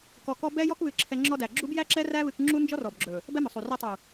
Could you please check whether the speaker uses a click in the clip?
yes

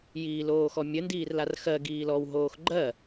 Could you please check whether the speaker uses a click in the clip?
yes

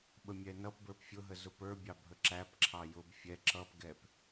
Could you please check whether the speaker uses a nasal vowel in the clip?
no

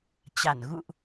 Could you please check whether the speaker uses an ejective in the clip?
no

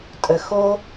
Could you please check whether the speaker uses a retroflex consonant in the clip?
no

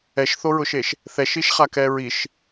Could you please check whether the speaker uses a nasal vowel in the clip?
no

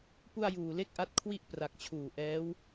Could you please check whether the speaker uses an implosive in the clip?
no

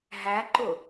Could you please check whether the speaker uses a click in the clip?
yes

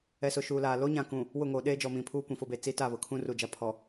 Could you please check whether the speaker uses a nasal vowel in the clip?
yes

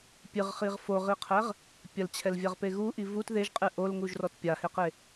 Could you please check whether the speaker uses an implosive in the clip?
no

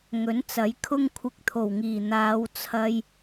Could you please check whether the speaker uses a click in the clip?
no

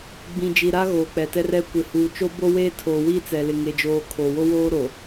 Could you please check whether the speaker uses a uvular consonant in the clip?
no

